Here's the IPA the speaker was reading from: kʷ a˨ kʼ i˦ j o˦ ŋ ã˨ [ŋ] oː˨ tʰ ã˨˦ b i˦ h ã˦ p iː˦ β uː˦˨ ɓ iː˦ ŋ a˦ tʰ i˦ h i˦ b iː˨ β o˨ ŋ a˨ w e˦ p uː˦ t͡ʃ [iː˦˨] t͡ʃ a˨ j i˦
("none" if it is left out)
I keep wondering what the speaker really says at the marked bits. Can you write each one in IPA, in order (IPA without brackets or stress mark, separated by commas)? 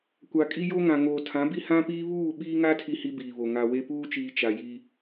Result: ŋ, iː˨